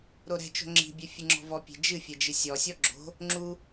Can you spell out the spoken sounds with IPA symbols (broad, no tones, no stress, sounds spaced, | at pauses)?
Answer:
ɾ o ɾ ɛ̤ t͡ʃ o̤ ŋ͡ǁ i̤ bʲ ɛ fʲ ɨ ŋ͡ǁ ɔ̤ v ɔ pʲ e̤ d͡ʒ ɨ fʲ ɛ d͡ʒ ɨ sʲ ɔ sʲ ɔ ɡ͡ǁ o̤ | ŋ͡ǁ u